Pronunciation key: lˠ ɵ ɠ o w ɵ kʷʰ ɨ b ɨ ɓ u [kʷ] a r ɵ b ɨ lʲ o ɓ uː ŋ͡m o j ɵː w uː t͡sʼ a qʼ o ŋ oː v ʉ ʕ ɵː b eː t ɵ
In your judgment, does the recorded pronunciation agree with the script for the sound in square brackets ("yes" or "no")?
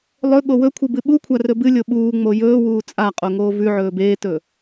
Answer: no